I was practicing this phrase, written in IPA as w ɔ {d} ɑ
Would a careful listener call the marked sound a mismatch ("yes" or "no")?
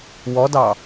no